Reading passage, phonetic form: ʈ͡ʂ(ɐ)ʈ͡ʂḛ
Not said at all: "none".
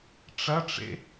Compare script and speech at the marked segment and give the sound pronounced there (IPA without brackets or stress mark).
ɐ